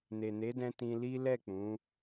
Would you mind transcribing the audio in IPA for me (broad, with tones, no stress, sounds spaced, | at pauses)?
n e˨ n e˨˦ d ɛ̃˧ t ĩ˧ l i˦ l ɛ˦˨ k͡p ũ˨˦